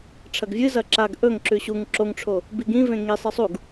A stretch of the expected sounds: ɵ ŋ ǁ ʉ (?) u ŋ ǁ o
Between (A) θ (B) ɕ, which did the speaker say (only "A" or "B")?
B